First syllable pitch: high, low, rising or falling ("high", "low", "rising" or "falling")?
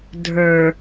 low